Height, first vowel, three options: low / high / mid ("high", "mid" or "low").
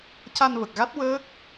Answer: low